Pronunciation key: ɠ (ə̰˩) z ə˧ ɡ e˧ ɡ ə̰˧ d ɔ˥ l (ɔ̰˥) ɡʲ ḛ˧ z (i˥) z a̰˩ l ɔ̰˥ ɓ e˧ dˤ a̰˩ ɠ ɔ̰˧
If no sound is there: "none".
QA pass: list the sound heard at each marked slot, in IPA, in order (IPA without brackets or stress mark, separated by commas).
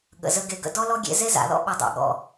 ə̰˩, ɔ˥, e˥